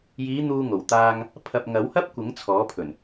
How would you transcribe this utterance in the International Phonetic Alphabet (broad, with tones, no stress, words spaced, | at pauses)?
jiː˨˧ n̪uː˧ ŋo˨˩wt̪aː˧ŋ | pʰɐ˨p̚ŋɐ˨˥whɐ˥p̚ kʷɪ˨˥ŋt͡sʰɔː˨˥pʰɵ˨˩n